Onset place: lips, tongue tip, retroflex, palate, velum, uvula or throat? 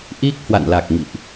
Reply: throat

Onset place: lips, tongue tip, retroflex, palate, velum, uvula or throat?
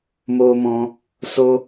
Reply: lips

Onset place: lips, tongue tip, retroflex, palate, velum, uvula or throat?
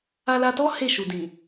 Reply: tongue tip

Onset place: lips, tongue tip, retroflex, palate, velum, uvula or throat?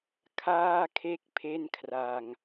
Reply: velum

